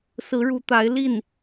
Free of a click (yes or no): yes